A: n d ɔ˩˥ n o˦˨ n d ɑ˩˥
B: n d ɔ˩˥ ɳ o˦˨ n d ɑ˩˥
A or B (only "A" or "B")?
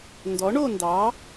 B